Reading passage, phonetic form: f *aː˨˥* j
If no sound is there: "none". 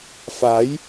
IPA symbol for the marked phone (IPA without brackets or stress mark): aː˨˥